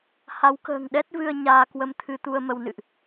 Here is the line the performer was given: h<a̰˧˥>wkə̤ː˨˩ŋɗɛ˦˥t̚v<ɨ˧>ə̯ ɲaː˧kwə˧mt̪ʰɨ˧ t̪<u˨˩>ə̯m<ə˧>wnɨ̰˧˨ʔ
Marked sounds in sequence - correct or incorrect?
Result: incorrect, correct, incorrect, correct

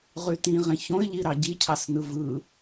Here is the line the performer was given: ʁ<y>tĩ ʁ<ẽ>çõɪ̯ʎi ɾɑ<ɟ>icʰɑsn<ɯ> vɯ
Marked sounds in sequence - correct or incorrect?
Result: correct, correct, correct, correct

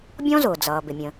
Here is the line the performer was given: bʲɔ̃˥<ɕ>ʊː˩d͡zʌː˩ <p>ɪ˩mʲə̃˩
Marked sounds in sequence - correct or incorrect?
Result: incorrect, incorrect

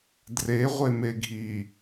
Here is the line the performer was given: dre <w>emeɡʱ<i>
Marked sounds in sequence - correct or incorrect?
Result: incorrect, correct

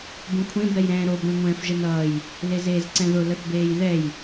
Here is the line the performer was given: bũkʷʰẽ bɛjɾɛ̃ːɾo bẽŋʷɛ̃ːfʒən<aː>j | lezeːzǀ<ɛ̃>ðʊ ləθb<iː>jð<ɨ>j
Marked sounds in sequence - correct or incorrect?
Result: incorrect, correct, incorrect, incorrect

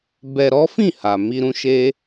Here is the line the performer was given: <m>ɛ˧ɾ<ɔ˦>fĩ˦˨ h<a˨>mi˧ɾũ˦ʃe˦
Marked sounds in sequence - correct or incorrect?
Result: incorrect, correct, correct

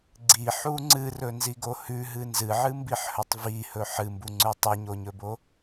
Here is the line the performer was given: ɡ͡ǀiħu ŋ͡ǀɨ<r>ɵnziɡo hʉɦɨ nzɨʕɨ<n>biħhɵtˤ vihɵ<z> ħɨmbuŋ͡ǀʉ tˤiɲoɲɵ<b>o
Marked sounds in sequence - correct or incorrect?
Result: correct, incorrect, incorrect, correct

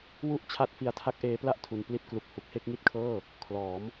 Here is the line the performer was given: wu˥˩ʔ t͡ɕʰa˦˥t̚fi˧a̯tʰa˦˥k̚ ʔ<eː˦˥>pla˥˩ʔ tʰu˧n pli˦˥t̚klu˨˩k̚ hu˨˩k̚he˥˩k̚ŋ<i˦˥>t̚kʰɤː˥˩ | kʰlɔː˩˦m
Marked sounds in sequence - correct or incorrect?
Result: correct, correct

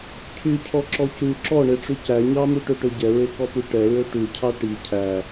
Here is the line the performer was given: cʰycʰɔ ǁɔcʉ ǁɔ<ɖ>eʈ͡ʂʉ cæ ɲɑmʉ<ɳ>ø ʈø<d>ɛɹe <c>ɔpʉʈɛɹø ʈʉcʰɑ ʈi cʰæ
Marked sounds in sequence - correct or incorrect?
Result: incorrect, incorrect, incorrect, incorrect

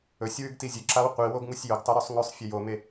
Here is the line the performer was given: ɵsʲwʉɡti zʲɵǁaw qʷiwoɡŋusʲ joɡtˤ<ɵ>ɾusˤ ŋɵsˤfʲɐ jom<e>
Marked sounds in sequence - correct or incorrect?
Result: correct, correct

